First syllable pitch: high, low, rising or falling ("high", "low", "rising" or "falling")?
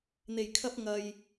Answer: low